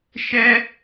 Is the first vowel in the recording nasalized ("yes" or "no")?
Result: no